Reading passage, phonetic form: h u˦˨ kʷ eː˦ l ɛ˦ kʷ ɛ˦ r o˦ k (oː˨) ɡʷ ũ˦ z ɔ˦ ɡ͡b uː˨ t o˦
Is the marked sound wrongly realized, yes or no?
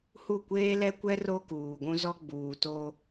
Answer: yes